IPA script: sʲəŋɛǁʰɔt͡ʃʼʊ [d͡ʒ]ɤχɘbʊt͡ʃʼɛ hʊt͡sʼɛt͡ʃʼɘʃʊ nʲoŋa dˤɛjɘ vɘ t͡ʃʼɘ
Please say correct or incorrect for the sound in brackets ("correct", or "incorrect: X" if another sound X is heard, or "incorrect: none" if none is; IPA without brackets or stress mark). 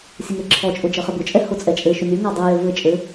correct